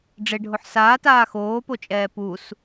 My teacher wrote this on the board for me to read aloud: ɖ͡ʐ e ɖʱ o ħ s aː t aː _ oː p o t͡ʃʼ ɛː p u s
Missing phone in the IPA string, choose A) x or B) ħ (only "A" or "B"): A